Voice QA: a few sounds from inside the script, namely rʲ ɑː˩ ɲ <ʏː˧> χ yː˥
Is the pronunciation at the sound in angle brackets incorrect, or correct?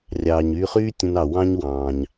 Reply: incorrect: yː˧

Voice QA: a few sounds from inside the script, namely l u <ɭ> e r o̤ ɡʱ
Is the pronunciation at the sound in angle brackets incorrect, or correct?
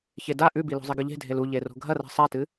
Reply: incorrect: ʎ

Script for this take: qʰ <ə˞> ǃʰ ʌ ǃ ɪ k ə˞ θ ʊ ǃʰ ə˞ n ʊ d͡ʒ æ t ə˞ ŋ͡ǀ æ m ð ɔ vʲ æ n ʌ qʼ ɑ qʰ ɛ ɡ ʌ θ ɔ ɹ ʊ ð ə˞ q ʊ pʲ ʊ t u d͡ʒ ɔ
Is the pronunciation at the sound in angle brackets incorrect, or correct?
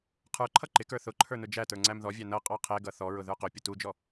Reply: correct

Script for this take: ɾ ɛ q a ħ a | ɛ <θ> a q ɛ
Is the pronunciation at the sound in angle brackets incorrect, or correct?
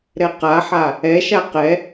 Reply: incorrect: ʃ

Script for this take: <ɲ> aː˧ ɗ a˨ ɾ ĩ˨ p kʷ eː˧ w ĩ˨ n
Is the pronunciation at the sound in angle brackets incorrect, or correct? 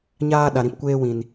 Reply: correct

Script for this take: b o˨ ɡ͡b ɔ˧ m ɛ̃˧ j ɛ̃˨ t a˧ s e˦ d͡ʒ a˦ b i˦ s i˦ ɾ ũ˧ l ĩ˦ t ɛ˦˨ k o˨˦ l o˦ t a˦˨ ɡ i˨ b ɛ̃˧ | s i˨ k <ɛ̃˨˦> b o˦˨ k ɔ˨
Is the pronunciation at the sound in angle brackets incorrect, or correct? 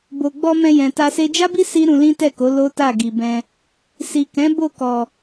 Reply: correct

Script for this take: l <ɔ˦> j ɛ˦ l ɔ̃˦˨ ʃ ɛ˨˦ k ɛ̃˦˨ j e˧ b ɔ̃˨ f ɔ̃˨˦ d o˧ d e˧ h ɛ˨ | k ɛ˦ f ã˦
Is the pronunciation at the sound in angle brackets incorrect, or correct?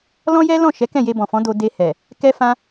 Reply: incorrect: ɔ̃˦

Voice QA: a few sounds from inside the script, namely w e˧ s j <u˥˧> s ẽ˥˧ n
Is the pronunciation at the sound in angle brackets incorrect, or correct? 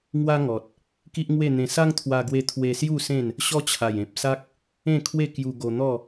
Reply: correct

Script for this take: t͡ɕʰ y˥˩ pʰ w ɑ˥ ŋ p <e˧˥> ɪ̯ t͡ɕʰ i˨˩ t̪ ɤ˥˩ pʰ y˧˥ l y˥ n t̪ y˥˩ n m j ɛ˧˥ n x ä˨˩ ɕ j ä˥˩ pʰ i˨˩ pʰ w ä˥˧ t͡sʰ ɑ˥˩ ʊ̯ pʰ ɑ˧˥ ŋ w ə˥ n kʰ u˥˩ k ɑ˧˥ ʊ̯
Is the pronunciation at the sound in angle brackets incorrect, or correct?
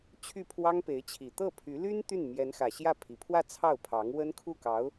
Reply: correct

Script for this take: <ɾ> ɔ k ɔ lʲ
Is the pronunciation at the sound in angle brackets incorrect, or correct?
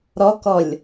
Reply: correct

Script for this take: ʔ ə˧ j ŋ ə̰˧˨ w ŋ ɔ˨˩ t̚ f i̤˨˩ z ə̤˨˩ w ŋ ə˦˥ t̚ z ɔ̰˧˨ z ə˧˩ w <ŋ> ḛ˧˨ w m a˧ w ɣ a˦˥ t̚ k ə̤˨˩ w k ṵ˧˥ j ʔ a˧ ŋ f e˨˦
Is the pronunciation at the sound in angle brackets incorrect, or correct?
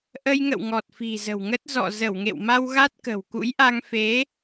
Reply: correct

